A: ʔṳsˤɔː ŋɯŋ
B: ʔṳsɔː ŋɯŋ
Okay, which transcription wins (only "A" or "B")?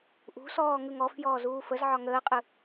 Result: B